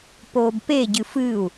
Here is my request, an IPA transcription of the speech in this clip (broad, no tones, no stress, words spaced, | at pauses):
poːbpe ɟɨfɨːu̯